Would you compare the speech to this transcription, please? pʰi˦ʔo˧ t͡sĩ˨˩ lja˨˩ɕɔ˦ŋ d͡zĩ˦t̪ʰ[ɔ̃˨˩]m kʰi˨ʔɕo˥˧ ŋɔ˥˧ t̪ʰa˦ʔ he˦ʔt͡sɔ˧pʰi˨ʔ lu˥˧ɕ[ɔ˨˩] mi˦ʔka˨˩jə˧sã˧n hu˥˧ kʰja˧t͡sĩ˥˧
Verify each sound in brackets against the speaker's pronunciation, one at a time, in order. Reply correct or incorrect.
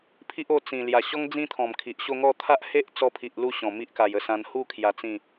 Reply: correct, incorrect

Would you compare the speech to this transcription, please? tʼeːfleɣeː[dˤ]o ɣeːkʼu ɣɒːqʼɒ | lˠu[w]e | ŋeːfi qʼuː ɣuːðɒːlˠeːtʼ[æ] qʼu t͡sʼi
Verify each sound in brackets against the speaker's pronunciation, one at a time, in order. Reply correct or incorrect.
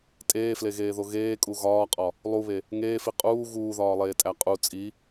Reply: incorrect, incorrect, correct

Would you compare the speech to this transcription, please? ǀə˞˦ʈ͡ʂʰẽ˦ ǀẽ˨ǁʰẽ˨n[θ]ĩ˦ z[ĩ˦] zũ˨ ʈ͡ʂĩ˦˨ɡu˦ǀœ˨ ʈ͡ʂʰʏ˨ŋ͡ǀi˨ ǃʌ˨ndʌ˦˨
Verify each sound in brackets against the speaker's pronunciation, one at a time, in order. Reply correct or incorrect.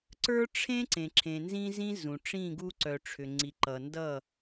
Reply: incorrect, correct

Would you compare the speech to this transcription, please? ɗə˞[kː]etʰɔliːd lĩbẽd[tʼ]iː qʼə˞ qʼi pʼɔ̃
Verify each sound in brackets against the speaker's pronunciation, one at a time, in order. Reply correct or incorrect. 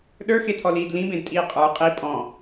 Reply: incorrect, correct

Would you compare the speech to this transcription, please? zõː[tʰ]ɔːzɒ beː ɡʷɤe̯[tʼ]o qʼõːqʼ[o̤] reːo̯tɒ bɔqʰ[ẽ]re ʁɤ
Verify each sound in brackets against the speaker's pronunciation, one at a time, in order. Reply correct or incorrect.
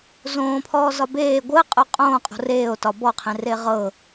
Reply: incorrect, incorrect, correct, correct

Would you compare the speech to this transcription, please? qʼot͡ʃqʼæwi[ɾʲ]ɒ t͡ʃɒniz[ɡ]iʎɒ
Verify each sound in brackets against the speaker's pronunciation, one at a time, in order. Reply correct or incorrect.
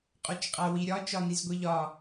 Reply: correct, incorrect

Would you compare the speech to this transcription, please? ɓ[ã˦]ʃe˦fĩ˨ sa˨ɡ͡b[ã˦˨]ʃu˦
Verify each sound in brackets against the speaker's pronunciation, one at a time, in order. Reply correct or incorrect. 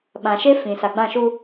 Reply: incorrect, correct

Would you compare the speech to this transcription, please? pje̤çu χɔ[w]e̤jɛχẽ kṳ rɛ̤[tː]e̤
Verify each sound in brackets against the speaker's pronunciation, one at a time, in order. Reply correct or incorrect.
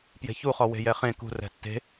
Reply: correct, correct

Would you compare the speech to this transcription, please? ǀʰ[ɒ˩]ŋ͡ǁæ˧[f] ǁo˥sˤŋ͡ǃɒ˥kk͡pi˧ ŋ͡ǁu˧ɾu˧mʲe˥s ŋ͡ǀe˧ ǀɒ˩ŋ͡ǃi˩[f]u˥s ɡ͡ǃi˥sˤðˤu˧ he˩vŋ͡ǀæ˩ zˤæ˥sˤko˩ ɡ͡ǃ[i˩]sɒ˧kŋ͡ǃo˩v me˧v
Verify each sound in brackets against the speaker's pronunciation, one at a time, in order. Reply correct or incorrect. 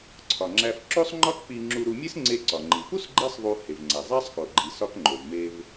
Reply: correct, correct, correct, correct

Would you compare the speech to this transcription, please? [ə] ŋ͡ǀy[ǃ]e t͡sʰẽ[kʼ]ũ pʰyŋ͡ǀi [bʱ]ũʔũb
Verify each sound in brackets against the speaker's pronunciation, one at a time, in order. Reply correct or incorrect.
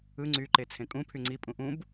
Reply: incorrect, correct, correct, incorrect

